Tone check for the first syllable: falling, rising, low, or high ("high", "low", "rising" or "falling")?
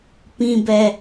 high